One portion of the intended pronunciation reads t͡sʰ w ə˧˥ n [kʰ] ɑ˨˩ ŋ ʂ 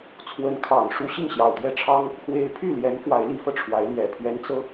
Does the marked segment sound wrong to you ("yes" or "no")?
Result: no